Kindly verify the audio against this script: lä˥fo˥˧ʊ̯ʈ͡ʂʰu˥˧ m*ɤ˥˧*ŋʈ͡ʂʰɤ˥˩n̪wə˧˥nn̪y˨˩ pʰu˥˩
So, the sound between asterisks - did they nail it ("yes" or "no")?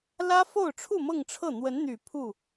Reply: yes